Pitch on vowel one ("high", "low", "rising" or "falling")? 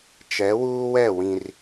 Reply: rising